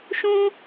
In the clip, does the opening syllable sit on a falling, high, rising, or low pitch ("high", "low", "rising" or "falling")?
high